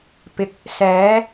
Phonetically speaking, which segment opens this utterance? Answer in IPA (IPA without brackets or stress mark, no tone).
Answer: p